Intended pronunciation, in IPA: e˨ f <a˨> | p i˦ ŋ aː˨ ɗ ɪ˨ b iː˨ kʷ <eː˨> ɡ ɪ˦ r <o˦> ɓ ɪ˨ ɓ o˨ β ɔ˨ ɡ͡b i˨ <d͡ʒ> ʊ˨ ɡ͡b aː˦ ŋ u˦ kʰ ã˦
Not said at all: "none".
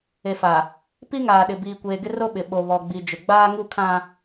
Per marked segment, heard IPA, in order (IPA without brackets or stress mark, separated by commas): a˨, eː˨, o˦, d͡ʒ